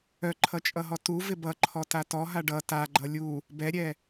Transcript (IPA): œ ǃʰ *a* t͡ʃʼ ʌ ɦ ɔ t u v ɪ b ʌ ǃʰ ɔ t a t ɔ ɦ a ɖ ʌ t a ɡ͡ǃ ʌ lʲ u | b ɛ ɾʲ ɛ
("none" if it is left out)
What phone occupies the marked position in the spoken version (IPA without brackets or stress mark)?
ʌ